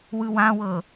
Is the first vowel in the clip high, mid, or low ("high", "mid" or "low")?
high